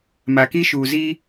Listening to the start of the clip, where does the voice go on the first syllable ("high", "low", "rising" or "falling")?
low